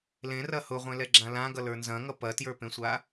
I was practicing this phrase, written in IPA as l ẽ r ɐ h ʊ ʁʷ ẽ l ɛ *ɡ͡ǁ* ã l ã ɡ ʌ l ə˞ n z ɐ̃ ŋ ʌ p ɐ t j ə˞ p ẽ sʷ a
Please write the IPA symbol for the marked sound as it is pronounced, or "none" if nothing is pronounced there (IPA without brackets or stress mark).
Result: ɡ͡ǁ